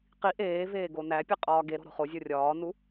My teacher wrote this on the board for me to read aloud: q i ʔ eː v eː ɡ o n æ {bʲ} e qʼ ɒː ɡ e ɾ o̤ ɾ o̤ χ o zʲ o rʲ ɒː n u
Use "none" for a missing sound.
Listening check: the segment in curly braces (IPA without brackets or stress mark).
pʲ